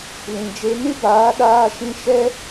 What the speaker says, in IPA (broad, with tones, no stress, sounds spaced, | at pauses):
l ĩ˨ d͡ʒ e˧ n ɨ˦ b aː˨˦ ɗ aː˧ ʃ ĩ˧ ʃ ɛ˦